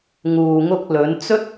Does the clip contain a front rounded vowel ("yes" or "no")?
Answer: no